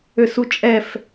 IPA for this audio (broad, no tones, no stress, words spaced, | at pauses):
øsut͡ʃʼɛf